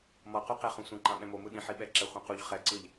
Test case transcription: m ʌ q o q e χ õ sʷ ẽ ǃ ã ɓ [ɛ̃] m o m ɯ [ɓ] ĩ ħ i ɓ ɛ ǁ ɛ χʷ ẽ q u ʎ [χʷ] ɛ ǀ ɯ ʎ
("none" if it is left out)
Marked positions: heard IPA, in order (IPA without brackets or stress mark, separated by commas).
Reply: ɛ̃, ɗ, χ